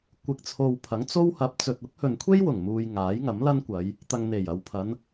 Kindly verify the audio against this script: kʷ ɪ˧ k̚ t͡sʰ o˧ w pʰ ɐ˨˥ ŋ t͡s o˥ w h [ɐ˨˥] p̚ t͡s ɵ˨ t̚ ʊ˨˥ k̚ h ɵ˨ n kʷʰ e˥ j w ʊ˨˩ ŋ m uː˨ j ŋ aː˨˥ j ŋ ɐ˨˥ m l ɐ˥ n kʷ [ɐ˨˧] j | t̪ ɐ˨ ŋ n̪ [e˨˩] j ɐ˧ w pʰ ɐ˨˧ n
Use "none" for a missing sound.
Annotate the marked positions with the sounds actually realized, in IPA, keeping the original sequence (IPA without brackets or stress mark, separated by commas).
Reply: ɐ˨˥, ɐ˨˧, e˨˩